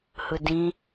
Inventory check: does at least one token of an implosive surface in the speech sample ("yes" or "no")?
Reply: no